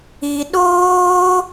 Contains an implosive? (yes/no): yes